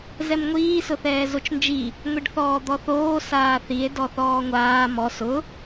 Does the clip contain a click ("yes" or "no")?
no